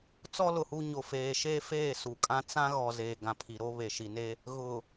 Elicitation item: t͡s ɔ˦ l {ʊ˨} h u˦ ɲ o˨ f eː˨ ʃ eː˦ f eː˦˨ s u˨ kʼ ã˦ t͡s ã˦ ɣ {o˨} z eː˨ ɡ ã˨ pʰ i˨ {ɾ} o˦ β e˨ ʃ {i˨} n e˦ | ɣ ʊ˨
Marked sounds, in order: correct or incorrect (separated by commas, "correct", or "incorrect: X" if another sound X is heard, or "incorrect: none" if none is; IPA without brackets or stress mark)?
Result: correct, incorrect: ɔ˨, correct, correct